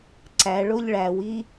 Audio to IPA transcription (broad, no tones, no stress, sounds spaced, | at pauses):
ǀ æ ɭ o ʎ ɭ æ w i